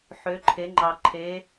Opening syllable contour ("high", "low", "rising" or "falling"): rising